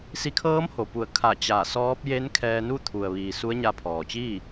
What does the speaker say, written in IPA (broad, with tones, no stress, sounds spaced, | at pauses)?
s i˧ kʰ ɤː˧˥ m h o˩ p u˧˩ ə̯ kʰ a˧˩ t͡ɕ a˧˩ s ɔː˧˥ p̚ j e˧˥ n kʰ ɛː˧ n u˥˨ t̪ʰ u˩ ə̯ ʋ iː˩ s u˧˥ ə̯ ɲ a˧ pʰ ɔː˩ t͡ɕ iː˥˨